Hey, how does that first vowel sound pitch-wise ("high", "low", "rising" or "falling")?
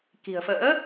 low